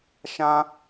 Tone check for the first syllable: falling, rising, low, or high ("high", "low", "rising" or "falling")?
high